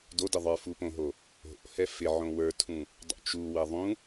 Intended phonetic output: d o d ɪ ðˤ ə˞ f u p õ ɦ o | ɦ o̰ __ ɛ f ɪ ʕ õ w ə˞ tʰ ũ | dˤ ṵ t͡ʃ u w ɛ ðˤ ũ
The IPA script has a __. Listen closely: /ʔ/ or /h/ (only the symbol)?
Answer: h